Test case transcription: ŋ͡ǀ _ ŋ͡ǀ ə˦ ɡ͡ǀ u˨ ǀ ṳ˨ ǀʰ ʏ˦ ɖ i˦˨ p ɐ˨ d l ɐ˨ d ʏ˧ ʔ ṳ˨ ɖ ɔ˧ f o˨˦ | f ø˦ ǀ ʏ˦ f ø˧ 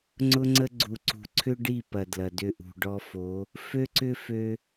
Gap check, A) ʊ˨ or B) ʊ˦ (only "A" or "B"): B